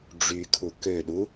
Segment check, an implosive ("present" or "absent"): present